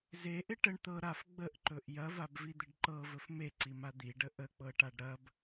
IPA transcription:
zeʔɪ ʈəɳ t̪ɤ ɾaf ɡ͡bəʔǃɵʔ jɐvabvid̪ɪɖ ǃɤvɵf meǀima d̪iɖə ʔək͡pɤʈaɖ ɾɐb

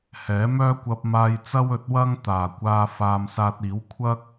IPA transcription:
hɛː˨˥ mœː˥kʷɐ˧p̚maː˧jt͡sɐ˥w ɵ˨˥t̚wɐ˥ŋt̪aː˨˩kʷaː˧ faː˧m saː˧t̚ iː˨˥w kʷʰɐ˥k̚

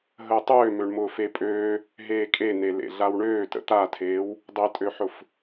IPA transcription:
ɦəːtˤøː møɳmʊːfepʼøː | ɦeːkʼe nelḛɮawɳøː tə̰t̪atʰeːw | dˤetʼøħʊf

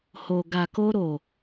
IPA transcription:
ho˨ ɡa˨ko˧ɾo˨

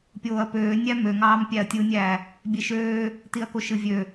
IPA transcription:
pʲoːɐ̯pøːnʲæ møŋɑːm pʲæɐ̯tʲɯnʲæː | bʲeʃøː | tiɐ̯koʃɯvʲø

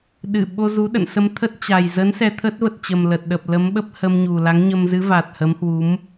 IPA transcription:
ɗɨ˧˩ ɓo˧zu˨˦ɗə̰˧˨n sə˧mt̪ʰə˦˥t̚ t͡ɕa˨˩jzə˨˦n sɛ˧t̪ʰə˦˥t̚ və˨˩t̚t͡ɕə˨˩m lə˨˩t̚ɗə˨˩p̚lə˨˦mɓə˦˥p̚ hə˧mɲu˨˩la˨˦ŋɲə˧m zɨ˨˦va˨˩t̚ hə˨˦mhwu˨˦m

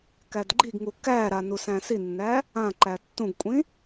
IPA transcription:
kædɡ͡ǃiɡŋu kæɾa nusæ̃sinːæ | ãǃæ tːũɡkʷʼĩ

